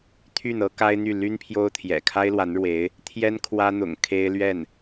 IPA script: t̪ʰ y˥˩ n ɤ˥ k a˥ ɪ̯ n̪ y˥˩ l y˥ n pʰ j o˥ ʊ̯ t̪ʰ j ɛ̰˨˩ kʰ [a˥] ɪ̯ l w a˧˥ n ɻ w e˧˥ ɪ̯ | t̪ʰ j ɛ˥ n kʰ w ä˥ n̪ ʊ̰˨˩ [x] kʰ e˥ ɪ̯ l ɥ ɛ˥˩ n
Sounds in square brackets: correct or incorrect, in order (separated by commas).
correct, incorrect